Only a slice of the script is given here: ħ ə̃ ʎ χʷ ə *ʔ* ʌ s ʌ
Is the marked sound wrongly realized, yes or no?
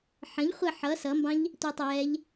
yes